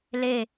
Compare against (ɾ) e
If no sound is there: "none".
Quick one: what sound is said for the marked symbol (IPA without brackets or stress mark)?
l